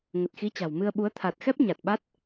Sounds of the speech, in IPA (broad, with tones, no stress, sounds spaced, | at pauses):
ŋ ə˨˩ t̚ x i˨˦ t͡ɕ a̤˨˩ w m ɨ˧ ə̯ ɓ u˨˦ ə̯ t̪ʰ a˨˩ t̚ x ɛ˦˥ p̚ ɲ a˨˩ t̚ ɓ a˦˥ t̚